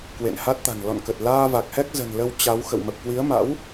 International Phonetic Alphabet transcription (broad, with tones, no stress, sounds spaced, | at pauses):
k w ḛ˧˨ n h a˦˥ t̚ t̪ a̤˨˩ n l ɔ̰˧˨ n k ə˨˩ t̚ l aː˧ v a˨˩ k̚ h ɛ˦˥ k̚ z ə̤˨˩ n l ə˧ w t͡ɕ a˨˦ w x ə̰˧˨ w m ə˨˩ p̚ k w i˨˦ ə̯ m a̰˧˥ w